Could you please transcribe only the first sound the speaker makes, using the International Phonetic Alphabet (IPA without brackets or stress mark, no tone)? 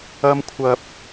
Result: ɐ